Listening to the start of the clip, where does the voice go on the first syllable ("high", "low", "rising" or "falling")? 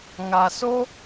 low